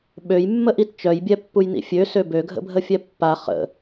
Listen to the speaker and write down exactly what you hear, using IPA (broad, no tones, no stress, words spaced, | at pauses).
ɓøjmːəʔit t͡ʃœjbʲɛpːujnḭ fʲøsø bøɡʱə̰bʱəfʲɛ pːa χə̰